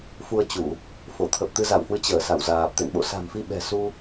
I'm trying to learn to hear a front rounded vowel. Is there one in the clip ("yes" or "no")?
no